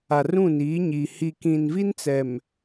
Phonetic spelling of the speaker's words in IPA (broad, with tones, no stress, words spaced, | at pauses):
a˨rũ˦˨niː˨˦ɲi˨ hi˨kĩ˨nvi˦nt͡sɛ˨m